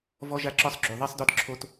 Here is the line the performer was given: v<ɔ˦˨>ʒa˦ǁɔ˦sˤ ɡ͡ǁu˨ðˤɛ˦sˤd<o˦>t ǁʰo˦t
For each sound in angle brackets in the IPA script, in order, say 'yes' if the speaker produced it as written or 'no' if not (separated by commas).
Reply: no, no